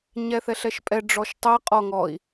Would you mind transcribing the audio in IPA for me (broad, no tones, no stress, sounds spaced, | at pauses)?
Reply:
ɲ ɛ θ ɛ ɬ ɛ ʃ pʼ ɛ ɖ͡ʐ ɔ ʃ tˤ ɛ qʼ ɔ ŋ ɔ i̯